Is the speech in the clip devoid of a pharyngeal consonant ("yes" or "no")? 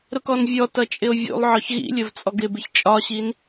no